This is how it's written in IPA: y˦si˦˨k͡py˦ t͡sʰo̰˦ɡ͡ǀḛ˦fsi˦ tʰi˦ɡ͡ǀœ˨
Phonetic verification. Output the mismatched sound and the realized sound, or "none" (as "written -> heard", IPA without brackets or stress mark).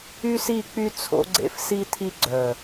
none